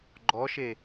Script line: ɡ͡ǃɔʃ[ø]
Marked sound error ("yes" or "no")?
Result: yes